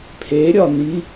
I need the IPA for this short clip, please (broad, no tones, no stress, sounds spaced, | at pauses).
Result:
pʰ e ɾʲ ɒ n i